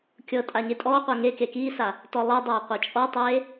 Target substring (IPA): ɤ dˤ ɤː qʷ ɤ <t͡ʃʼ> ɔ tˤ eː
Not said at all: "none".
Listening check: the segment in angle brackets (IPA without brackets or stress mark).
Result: t͡ʃʼ